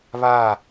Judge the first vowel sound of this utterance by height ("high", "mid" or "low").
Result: low